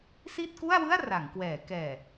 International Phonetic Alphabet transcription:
s i˥˩ t̚ k u˥˩ a̯ w ɯ˥˩ a̯ r a˩˦ ŋ k w ɛː˩˦ k ɛː˨˩

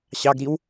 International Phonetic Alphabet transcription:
ɕ ɑ ɡ ɾ i w

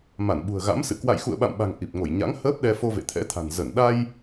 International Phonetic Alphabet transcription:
m a˧˩ n ɓ ṳ˨˩ ə̯ ɣ a̰˧˥ m s ɨ̰˧˨ k w a̰˧˨ j x ṵ˧˨ ə̯ ɓ a̰˧˨ m ɓ a̤˨˩ ŋ ʔ i˨˩ p̚ ŋ o˧˩ j ɲ a̰˧˥ ŋ h əː˦˥ p̚ ɗ ɛ˧ f o˧ v ḛ˧˨ t̪ʰ ɛ̰˧˥ t̪ʰ a̤˨˩ n z ə˧˩ n ɗ a˧ j

